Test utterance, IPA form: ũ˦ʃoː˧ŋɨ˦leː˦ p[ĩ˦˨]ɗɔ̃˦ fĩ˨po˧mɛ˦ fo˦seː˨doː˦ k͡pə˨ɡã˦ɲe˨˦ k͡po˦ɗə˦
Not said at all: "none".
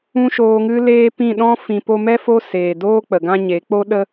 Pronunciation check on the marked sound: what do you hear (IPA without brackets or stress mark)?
ĩ˦˨